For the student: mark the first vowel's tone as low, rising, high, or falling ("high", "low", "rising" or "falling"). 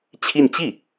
falling